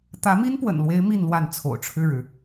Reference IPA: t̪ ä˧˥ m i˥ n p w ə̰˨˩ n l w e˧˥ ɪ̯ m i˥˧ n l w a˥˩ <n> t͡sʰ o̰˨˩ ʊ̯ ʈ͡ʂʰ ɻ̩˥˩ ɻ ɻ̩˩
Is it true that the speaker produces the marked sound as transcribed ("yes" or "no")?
yes